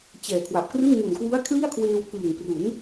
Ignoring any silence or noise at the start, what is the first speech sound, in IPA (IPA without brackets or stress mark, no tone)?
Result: t͡ɕ